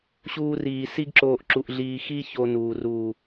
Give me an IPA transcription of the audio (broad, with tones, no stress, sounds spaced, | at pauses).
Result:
ɕ uː˦ r iː˧ s i˦ ɡ ǁ oː˧ ʔ ǁ u˨ ʔ ɮ iː˨ x i˧ ç o˧ n uː˨ r uː˨